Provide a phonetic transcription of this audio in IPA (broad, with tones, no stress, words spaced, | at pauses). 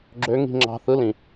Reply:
ɡ͡ǁø˧˥ŋi̤˦˨ŋ͡ǁɑ̤˦˨ θɯ˧˥lĩ˨